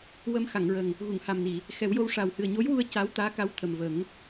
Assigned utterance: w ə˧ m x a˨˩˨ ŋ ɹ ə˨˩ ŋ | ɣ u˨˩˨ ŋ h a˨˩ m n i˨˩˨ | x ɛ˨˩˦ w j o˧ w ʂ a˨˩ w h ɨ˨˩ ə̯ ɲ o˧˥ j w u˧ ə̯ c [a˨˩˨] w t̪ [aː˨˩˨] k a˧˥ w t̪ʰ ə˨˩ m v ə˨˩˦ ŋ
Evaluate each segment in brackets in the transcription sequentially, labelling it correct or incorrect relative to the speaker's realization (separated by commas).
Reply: incorrect, incorrect